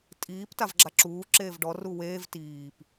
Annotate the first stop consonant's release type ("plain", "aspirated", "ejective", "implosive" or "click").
ejective